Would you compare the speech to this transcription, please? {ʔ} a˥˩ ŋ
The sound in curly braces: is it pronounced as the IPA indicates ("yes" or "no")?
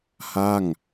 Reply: no